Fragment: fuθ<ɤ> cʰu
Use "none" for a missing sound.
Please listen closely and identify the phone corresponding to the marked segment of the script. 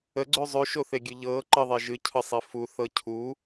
ɤ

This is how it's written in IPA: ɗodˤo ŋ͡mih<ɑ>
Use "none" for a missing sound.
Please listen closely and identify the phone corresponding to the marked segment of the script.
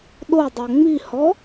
ɔ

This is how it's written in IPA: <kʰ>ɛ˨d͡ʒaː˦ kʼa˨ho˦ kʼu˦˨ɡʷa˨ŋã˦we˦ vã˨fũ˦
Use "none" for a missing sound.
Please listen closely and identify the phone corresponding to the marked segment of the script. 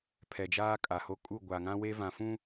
pʰ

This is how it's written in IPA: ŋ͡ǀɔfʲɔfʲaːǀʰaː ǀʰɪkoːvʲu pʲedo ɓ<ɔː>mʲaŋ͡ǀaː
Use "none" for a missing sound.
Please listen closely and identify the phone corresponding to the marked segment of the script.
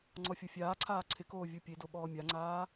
ɔː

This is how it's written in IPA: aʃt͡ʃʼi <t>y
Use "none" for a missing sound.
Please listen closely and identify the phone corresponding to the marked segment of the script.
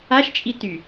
t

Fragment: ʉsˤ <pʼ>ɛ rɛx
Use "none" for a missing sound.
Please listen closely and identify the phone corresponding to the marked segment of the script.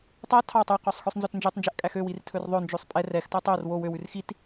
pʼ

